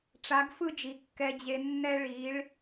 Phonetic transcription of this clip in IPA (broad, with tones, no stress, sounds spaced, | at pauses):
ʈ͡ʂ a˩˧ ɡ f ɯ˧ d͡ʒ i˩ kː ɛ˩ d͡ʑ e˩ nː ɛ˧ ɭ i˩˧ ɭ